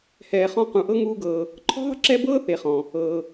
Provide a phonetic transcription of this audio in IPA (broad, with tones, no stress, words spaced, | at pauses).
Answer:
hɛː˨χɔ̃˦ qũ˩ʔɤ˥ŋuː˦ɡɤː˨ | ǃʰɔ̤˥ðˤə̤˥ǁɛ˦ bɤː˥ θe˨χɔ̃˩ | ɤː˩